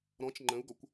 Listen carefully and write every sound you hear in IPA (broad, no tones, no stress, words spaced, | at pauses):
ɾɔ̃t͡ʃ ŋ͡ǃə̃u̯ɡɔkʷ